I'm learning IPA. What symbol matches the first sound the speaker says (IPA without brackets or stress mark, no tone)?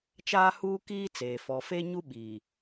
t͡ʃ